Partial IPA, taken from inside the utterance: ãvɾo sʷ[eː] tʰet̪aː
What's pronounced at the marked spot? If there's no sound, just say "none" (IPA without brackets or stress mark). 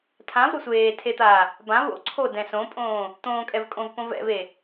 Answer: eː